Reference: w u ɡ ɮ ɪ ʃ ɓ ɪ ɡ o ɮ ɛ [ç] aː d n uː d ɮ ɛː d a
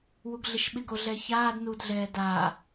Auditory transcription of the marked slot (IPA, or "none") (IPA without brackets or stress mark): ç